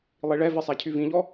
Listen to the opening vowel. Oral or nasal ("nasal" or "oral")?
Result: oral